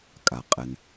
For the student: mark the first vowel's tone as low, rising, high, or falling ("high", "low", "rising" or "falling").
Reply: low